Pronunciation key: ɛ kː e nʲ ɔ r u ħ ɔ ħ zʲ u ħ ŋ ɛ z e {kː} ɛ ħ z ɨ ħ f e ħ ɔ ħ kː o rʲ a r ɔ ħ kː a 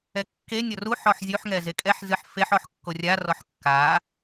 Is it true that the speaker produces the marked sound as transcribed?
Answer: no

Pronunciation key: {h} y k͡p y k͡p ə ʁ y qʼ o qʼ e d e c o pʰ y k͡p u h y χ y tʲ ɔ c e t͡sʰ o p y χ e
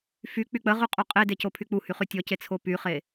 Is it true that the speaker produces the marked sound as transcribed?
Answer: no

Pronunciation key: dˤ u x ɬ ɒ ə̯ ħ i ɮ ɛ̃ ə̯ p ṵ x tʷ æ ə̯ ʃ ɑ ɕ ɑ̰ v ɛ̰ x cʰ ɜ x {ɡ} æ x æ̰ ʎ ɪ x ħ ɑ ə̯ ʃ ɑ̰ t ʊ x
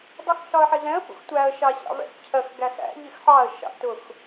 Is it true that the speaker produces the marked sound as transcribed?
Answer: yes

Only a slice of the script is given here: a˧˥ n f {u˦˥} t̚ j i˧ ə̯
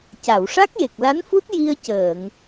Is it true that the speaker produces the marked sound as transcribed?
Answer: yes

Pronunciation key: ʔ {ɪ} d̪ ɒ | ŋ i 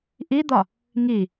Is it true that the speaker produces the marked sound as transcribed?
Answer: no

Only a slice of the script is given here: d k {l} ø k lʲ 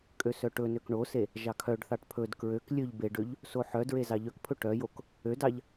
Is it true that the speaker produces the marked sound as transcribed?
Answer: no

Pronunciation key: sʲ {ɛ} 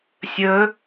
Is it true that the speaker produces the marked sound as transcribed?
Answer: no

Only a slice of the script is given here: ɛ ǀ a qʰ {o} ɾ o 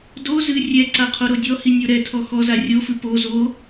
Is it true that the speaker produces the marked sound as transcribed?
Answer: yes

